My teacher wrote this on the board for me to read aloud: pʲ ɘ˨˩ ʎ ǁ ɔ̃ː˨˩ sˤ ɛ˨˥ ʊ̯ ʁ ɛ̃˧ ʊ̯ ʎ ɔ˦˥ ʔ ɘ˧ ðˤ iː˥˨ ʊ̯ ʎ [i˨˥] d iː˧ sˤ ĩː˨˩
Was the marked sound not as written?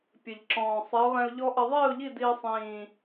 yes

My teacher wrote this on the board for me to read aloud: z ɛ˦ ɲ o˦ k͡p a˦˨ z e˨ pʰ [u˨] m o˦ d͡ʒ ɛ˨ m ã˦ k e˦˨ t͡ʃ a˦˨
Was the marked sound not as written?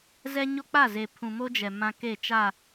yes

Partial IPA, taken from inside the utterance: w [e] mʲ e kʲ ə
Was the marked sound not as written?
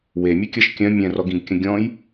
no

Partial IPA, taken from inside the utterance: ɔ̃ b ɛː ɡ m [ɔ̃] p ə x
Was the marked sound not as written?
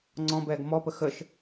yes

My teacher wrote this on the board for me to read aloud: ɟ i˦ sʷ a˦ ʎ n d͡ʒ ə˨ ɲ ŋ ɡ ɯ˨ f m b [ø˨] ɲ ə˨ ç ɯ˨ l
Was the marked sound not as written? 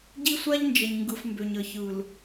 no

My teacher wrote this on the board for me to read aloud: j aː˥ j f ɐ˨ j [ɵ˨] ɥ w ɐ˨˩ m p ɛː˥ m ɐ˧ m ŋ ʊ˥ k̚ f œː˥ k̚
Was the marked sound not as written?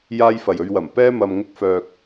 yes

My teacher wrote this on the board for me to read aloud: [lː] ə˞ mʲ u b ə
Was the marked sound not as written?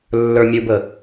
no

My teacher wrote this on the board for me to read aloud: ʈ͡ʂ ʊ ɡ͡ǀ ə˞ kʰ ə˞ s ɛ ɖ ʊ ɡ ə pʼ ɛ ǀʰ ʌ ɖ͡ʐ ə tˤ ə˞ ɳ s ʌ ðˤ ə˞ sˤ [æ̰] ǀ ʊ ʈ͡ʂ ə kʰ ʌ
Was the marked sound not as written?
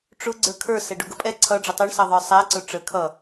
yes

